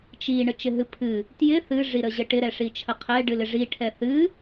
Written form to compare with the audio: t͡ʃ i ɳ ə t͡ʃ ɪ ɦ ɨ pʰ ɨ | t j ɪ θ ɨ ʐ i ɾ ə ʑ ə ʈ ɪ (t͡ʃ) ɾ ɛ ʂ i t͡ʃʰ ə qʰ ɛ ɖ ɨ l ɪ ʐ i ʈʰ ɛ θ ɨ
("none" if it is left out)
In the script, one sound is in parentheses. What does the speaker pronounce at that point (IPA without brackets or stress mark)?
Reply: none